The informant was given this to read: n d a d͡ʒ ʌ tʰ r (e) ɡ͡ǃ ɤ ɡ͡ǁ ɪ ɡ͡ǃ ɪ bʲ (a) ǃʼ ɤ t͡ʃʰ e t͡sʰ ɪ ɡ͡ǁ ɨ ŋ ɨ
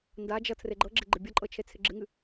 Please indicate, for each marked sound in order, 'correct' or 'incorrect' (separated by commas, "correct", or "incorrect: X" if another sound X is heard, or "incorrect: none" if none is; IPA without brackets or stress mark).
correct, incorrect: ʌ